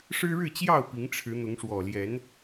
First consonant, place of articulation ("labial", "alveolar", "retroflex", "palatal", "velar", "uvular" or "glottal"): retroflex